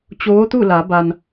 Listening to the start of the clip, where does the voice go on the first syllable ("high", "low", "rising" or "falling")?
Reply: rising